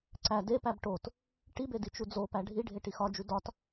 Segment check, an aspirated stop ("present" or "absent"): absent